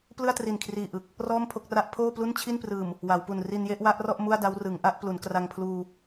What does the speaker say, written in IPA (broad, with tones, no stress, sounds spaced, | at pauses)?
p l ɯ˥˩ a̯ t r i˨˩ n kʰ r iː˨˩ ʔ ɯ˨˩ k̚ | r ɔː˥˩ m pʰ o˥˩ k̚ r a˦˥ ʔ pʰ oː˥˩ p l u˥˩ n t͡ɕʰ i˥˩ n p r ɯː˨˩ m | w a˩˦ w p u˨˩ n r i˧ n j e˥˩ ʔ w a˦˥ ʔ r ɔ˥˩ ʔ m u˥˩ a̯ d a˦˥ w r ɯ˩˦ ŋ ʔ a˥˩ ʔ p l u˩˦ n k r a˧ ŋ pʰ l uː˧